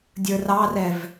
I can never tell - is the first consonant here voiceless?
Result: no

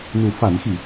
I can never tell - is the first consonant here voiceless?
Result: no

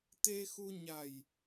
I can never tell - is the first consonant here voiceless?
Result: yes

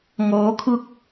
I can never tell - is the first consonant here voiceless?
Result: no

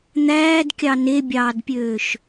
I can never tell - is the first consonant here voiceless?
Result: no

